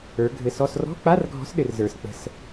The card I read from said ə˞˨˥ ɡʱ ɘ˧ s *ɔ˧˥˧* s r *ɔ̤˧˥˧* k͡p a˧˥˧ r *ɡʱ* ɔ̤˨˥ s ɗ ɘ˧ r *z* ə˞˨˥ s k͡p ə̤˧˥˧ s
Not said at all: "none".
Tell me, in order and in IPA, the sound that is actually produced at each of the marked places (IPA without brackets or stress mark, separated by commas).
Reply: ɔ˧˥˧, ɔ̤˧˥˧, ɡʱ, z